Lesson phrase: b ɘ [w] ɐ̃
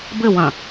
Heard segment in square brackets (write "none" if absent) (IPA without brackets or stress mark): w